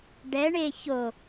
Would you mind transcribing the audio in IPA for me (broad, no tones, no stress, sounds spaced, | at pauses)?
ɖ ɛ ɳ e ç o